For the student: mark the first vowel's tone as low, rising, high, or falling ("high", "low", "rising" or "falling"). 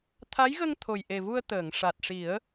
rising